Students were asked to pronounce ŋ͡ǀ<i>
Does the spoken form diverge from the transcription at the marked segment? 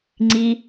no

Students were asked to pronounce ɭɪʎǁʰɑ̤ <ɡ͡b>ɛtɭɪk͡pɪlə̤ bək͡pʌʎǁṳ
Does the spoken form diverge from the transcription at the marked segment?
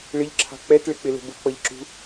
yes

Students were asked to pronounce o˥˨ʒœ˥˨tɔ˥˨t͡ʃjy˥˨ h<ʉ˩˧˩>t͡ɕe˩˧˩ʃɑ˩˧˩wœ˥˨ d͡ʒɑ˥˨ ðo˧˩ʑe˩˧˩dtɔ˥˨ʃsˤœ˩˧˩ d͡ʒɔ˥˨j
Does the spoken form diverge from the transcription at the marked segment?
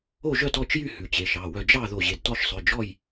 no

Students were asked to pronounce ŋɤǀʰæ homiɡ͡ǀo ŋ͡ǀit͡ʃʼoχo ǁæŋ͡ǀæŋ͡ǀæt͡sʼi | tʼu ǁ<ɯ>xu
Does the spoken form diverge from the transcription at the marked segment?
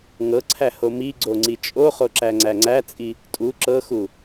yes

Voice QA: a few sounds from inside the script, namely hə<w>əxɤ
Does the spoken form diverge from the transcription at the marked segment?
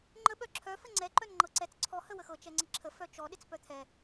no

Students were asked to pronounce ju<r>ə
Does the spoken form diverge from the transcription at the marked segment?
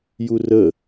no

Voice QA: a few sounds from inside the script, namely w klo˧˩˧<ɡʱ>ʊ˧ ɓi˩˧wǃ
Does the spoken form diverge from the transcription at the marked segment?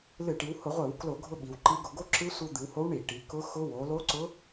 no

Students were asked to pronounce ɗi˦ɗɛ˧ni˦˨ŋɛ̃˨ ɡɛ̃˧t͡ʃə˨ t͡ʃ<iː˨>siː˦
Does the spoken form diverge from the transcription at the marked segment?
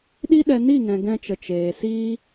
yes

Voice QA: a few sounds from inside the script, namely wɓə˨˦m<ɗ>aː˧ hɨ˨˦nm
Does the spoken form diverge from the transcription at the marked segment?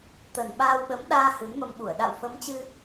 no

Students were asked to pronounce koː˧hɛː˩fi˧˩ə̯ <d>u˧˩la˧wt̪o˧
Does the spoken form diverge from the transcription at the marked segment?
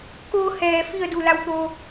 no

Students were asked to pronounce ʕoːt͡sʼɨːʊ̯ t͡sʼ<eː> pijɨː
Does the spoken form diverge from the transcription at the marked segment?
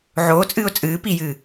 yes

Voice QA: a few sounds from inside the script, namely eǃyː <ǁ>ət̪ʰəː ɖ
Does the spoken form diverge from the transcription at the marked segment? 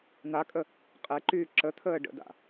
no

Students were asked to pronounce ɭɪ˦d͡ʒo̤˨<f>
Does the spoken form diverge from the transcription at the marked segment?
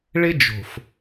no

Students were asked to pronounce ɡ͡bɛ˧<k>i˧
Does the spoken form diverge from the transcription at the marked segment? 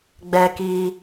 no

